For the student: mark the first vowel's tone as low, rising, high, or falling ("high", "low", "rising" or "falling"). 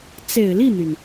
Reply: low